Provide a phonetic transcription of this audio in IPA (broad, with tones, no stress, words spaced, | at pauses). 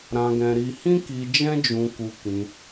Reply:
ɾã˧ɡɛ̃˧ɾi˧ hĩ˦ki˧ d͡ʒɛ̃˦d͡ʒũ˧ku˧kĩ˧